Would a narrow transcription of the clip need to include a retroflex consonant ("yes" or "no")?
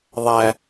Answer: no